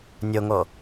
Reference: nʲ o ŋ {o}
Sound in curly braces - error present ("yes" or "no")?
no